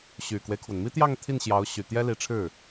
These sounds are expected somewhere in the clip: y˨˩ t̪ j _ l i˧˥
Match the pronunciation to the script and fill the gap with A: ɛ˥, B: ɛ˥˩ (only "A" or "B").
A